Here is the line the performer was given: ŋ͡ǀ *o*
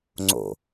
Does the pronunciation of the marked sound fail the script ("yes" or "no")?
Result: yes